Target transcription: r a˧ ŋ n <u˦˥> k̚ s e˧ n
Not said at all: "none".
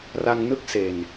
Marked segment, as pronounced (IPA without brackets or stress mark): ɯ˦˥